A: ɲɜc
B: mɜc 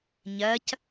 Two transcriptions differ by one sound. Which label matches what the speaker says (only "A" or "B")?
A